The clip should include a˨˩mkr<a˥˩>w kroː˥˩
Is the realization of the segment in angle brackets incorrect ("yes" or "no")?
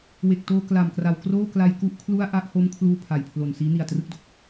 yes